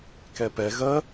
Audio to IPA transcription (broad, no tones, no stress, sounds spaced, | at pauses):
k ɛ p ɛ ɣ ɜ